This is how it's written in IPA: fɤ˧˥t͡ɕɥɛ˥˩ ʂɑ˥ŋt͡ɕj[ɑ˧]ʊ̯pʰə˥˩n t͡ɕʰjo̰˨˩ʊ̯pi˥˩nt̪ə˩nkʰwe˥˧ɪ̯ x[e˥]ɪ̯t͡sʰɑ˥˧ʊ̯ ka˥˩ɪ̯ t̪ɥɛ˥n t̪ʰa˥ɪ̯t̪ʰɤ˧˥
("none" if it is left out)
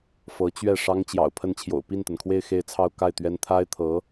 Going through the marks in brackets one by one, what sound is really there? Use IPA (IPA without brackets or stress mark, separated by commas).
ɑ̰˨˩, e˥˧